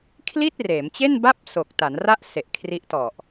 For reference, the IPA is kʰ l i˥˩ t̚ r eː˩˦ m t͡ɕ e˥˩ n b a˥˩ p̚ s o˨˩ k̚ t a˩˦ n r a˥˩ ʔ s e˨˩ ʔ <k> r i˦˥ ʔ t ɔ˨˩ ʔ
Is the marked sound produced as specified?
no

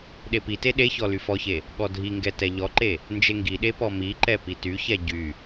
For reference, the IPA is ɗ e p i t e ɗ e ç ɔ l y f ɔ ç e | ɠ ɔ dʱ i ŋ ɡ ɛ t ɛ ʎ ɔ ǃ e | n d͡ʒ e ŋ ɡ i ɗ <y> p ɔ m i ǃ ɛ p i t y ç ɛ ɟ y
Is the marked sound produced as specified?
no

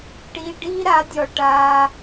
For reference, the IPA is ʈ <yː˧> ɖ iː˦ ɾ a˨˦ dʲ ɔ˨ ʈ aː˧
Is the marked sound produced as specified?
no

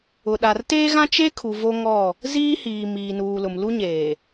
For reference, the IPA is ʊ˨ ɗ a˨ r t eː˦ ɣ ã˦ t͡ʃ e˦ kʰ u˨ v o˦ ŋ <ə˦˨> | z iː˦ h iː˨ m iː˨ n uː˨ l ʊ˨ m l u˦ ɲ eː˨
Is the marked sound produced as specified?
no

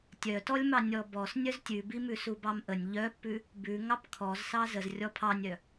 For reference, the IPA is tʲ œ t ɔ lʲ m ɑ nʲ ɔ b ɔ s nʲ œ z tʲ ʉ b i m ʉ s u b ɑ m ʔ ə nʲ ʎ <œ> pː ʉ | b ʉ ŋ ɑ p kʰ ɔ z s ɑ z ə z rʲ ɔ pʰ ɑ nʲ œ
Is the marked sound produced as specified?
yes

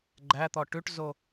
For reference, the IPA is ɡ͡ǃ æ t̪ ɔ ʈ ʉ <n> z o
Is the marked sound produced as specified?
no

